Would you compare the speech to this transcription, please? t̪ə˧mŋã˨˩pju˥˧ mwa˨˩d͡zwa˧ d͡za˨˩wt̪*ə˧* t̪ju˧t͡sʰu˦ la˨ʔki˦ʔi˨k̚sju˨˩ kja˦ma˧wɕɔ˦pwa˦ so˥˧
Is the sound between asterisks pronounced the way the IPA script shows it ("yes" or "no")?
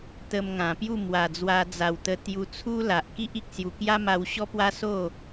yes